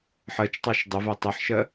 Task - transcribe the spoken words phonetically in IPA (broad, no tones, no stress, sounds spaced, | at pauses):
ħ ɜ t͡ʃ tˤ ɑ ʃ dˤ ə v ɜ tˤ ʌ ħ ʃ ɜ